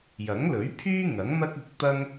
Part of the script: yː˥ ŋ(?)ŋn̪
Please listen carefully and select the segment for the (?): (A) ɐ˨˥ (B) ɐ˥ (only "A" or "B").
A